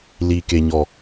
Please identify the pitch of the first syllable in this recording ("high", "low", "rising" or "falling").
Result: low